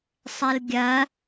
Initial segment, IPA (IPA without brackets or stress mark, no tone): sˤ